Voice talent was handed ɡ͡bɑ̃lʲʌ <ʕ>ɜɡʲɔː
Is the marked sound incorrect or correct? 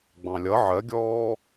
correct